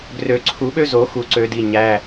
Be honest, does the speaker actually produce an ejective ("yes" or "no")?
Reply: no